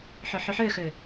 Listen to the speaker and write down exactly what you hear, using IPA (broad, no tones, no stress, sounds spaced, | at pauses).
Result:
ħ ɵ ħ ʉ ħ ø x ø